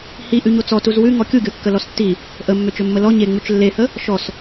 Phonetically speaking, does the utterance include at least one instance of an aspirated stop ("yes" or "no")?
no